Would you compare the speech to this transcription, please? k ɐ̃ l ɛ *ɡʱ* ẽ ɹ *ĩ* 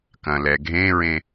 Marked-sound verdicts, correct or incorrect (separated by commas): correct, incorrect